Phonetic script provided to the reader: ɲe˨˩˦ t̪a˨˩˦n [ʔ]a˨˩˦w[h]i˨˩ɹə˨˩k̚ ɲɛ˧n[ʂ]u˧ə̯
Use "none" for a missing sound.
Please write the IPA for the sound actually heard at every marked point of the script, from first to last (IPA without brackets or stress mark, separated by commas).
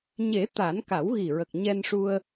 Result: k, ɣ, ʂ